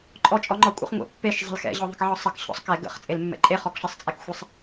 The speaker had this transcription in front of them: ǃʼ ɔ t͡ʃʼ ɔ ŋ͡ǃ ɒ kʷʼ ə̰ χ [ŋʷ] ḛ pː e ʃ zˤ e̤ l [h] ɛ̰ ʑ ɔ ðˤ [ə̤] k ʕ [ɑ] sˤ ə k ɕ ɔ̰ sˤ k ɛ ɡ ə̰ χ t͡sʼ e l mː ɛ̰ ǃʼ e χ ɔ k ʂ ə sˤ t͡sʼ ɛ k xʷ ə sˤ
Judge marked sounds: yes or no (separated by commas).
yes, no, yes, no